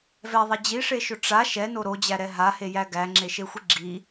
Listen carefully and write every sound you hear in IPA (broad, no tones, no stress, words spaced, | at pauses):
vɛðˤɛ d͡ʑiʂeʃʊ ʈ͡ʂa ʃɛno ɾod͡ʑæɾɛ ɦahejæ ɡæŋ͡ǁeʃexʷi ɡ͡ǁi